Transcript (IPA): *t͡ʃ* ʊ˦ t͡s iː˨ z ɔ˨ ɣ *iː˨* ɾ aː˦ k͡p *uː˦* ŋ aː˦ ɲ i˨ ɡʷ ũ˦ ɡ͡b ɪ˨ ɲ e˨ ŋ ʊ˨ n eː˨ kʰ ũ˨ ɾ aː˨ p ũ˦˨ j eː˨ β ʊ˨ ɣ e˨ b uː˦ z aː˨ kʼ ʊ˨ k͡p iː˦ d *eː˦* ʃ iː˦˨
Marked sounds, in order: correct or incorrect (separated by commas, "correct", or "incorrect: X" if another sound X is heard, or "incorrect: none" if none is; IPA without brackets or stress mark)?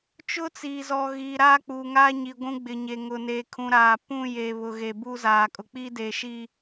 correct, correct, incorrect: uː˨, incorrect: eː˨